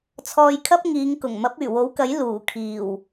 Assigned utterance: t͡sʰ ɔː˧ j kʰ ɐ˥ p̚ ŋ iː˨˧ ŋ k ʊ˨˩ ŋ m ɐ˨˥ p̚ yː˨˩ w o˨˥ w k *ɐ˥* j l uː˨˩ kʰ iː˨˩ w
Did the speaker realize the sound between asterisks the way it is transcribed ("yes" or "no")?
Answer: no